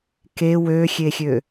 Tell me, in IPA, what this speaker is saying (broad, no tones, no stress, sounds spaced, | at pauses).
k e w ø xʲ e xʲ ø